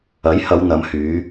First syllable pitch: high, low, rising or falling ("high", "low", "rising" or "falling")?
rising